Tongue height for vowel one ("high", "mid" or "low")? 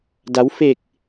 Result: low